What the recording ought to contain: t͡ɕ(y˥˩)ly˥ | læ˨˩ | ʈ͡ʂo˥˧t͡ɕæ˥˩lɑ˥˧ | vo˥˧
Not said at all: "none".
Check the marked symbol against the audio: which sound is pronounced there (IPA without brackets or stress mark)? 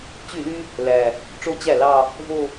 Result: y˥˩